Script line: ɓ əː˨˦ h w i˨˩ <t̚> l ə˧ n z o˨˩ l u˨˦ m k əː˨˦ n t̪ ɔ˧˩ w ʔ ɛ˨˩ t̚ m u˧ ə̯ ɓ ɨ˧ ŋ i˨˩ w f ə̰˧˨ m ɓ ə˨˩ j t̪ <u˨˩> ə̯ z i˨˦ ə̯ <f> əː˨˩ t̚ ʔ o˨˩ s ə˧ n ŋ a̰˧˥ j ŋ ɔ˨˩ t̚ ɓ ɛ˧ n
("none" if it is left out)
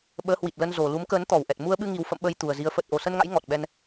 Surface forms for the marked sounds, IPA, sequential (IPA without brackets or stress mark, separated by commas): t̚, u˨˩, f